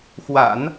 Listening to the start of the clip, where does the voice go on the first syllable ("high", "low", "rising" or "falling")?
low